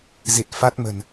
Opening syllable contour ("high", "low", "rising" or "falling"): low